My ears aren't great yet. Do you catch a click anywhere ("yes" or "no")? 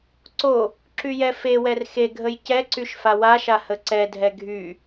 yes